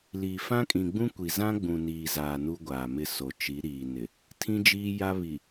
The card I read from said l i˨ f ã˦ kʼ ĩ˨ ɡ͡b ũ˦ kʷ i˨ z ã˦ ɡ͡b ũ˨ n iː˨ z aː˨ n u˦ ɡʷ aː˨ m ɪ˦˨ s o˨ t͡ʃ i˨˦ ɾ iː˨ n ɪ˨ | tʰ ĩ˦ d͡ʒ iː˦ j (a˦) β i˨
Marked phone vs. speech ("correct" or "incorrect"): correct